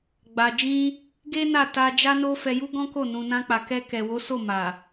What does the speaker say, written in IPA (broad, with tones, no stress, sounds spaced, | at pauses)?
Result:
ɡ͡b a˨ d͡ʒ ĩ˧ | ɡ e˦ n a˦˨ t a˧ d͡ʒ a˦ n o˦ f ɛ˧ j u˦ ɡ ɔ̃˦ k o˦˨ n ũ˨ n ã˧ k͡p a˨ k ɛ˧ k ɛ˨ w o˨˦ s o˦˨ m a˨